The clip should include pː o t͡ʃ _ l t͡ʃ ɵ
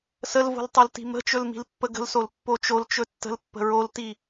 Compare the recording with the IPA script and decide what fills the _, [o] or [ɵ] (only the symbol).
o